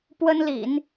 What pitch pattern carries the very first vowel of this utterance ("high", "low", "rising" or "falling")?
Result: high